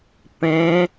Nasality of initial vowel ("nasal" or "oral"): nasal